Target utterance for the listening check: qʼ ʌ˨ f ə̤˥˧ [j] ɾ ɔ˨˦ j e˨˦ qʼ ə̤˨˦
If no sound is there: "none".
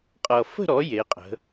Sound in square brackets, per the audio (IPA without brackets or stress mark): none